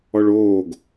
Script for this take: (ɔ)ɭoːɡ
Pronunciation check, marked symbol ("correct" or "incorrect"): correct